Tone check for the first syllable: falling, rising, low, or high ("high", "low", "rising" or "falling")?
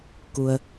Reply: low